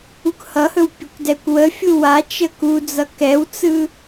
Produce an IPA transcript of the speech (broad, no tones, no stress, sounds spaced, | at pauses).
u k h ʌ h ɵ w pʲ ə kʷ d ɛ kʷ w ə fʲ u w a t͡ʃ ə k u d͡z ʌ k ɛ w t͡s ɯ